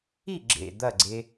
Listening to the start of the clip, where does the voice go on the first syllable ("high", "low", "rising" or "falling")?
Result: falling